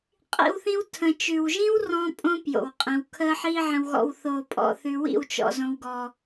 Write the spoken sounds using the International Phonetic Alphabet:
qʼḭ˦wθĩ˦w tʰə̃˨t͡ʃʉ˨wʒĩ˦w rɔ̃˦pʼõ˦ pjo̰˨wqʼĩ˨w kʰəː˦ħiː˦ʕə̃˧wɣɔ̰˧w θo˧pʼɔ̰˧θʉ˧ wḭ˦˨wt͡ʃɔ̰˨ zõ˨wɡɔ˨

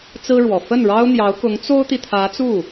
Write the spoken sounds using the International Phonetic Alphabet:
t͡sɹ̩˥ɻwɔ˨˩ fə˥˩nɻɑ˥ʊ̯n̪jɑ˧˥ʊ̯ kʊ˧˥ŋt͡so˥ʊ̯t̪i˨ t̪ʰä˧˥t͡su˥˩

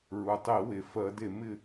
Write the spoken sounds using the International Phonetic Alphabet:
ɹu˩tˤi˧˩˧we˩ fɜ˧˩˧de˧˩˧mɪ˥˨

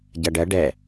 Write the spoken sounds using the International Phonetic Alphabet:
ɟɐɖɜ ɖɛ

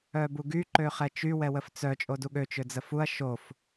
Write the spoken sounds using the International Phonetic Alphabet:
œbuɡy ǃøχɛt͡ʃy wɛwəft͡sœ t͡ʃʼoduɠø t͡ʃød͡zəfuɐ̯ ʃof

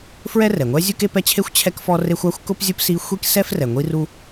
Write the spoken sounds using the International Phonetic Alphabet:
fɹɛ˥rɛ˩ŋʷɛ˥ zʲu˥ke˥pɛ˥t͡ɕʰe˥xʷ t͡ɕʰɛ˥kfɔ˥re˥xʷ a˥xʷkʊ˥pzʲʊ˥p si˥ xʷi˥k sɛ˥frɛ˩ ŋʷi˥ru˥

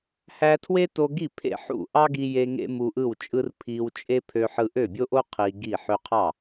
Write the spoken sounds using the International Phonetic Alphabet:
hæ˧tʰwe˥ to˧ɡi˥˩pʰḛ˥˩ ħṵ˥˩ʔɑ˥ɡi˧je˧ ŋḛ˥mu˧ʔɯ˥˩wt͡ʃʼɯ˥r pʰiː˧wt͡ʃʼe˥ pʰø˧ħɯ˧ʔø˥˩bʲo˥ ʔo˥ qʰiː˧ɡi˥˩ ħø˧qʰɑ˥˩

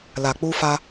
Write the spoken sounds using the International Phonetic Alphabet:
la˨k͡pu˧fa˧

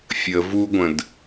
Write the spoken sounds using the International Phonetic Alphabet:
fʲə vuɡʷə̃d

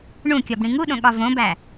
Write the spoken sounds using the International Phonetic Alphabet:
ɳũkʲɒb ɽĩŋuɗõ ɠɒvõbæ

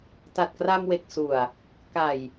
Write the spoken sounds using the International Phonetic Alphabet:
ta˨˩t̚kra˧mwe˨˩k̚su˨˩a̯ | ka˨˩j

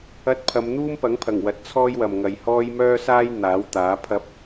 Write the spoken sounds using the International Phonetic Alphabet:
ɐ˧t̚ pʰɐ˨˧mn̪uː˥mpɐ˨˥ŋpʰɐ˨˩ŋ wɐ˨t̚t͡sʰɔː˥jwɐ˨mŋɐ˨j hɔː˥j mœː˥saː˥j n̪aː˨˥wt̪aː˨˥pʰɐ˥p̚

